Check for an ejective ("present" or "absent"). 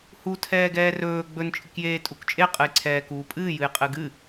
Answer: present